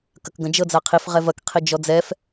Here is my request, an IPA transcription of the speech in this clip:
k ɐ k ɡ ɐ̃ d͡ʒ ɤ d͡z a qʰ i f ʁ ɛ v ɐ k qʰ i d͡ʒ ɔ d͡z ɛ f

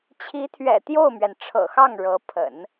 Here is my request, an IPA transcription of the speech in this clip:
t͡ɕʰ i˧˥ t̪ʰ ɥ ɛ̰˨˩ t̪ j o˥˩ ʊ̯ m ɥ ɛ˩ n ʈ͡ʂʰ ɤ̰˨˩ x ɑ˥˩ ŋ ɻ ɤ˧˥ pʰ ə̰˨˩˦ n

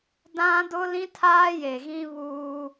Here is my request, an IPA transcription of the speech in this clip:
d ã˦ d ʊ˦ l ĩ˦ tʰ aː˦ j e˨ ɣ ĩ˦ β uː˦

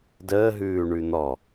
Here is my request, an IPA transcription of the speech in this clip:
d əː ɦ ʉː ɳ ʉ n̪ ɔ

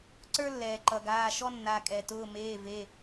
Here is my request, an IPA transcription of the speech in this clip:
ǀ ə˞˥ lː ɛː˩ ǃ ʌ˩ ɡ aː˩˧˩ ʃ ɔ˥ nː a˩˧˩ kʼ ɛ˩ t ʊː˩˧˩ m eː˩˧˩ v e˩˧˩

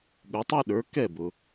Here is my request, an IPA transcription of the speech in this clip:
ɠ ʊ˩˥ tˤ ɑ˥ ɗ ə˞˩˥ k ɛ˥˩ b ʊ˩

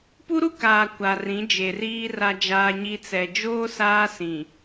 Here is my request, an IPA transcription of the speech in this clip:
p u˦ ɾ u˦ k aː˨ kʷ a˨ r ĩ˨˦ d͡ʒ e˨ r iː˦ r a˦ d͡ʒ aː˦ ɲ i˦ t͡s ɛ˨ d͡ʒ oː˦ s aː˦ s ĩ˨

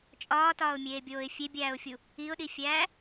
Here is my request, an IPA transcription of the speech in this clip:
t͡ʃʼ ɒː t ɒː ʊ̯ mʲ eː bʲ oː ɪ̯ fʲ e bʲ æː ʊ̯ fʲ u | i ʊ̯ ɗ i fʲ æː

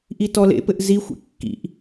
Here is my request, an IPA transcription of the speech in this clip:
ʔ i t ɔ l ḛ p ɘ ʔ z i xʷ ḛ kː ḭ ʔ

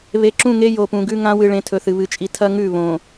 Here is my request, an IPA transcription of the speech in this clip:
β e˨ ǁ ũ˦˨ ŋ e˦ j o˨ p ũ˨ ɡ ʉ˦ ŋ ã˦ w ɨ˨ ɭ ẽ˨ tʰ ɵ˨ θ ɨ˨ β ɨ˨ t͡ʃʼ i˨ tʰ ɐ˦ ŋ ʉ˦˨ β õ˨

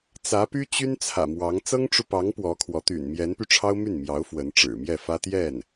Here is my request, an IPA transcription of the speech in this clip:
t͡s ä˧˥ p y˥ t͡ɕ y˥ n t͡sʰ ä̰˨˩ m w ɑ˧˥ ŋ t͡s ɤ˥ ŋ ʈ͡ʂ u˨ p ɑ˧˥ ŋ p w ɔ˧˥ kʰ w ɔ˧˥ t̪ y̰˨˩ n m j ɛ˧˥ n p y˧ ʈ͡ʂʰ ɑ˥ ʊ̯ m y˥˩ n m j ɑ˧˥ ʊ̯ f w ə˧˥ n ʈ͡ʂ ɻ̩˨˩ m j ɛ˥˩ f ä˥ t̪ j ɛ˥˩ n

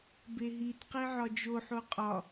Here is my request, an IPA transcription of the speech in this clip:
b e ɦ i t q e ʕ ɒ d͡ʒ o ħ o qʼ ɒ

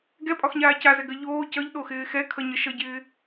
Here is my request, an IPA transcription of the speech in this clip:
ɡ ɛ pʼ ɒ x ɲ aː c a z ɛ ɡ ɜ ʎ oː c ʌ ʎ ɗ o x ɪː x ɛ kʰ ʌ ɲ ʌ ʃ ʌ ɟ ɪː

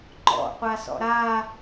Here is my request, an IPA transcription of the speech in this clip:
ŋ͡ǃ ɔ̰ qʷ a s ɔ̰ ɾ a

